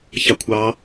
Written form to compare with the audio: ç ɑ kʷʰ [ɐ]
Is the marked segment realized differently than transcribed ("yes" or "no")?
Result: yes